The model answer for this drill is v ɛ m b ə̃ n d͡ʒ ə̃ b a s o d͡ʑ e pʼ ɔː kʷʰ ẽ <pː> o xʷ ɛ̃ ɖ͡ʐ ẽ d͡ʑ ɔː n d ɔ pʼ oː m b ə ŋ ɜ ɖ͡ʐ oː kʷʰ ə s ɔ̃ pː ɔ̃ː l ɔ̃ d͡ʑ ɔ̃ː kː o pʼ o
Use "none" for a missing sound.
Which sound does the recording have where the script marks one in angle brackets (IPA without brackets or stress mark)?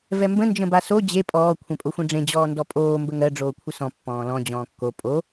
pʼ